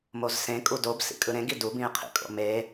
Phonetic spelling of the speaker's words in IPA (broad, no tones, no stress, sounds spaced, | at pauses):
m o z s ẽ kʼ u d o b s ḭ kʼ ɯ ɾ ẽ ɡ i d u b ĩ e̯ qʰ ḭ kʼ o̰ m e